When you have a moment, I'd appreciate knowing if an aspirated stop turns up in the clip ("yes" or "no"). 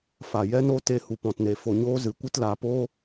no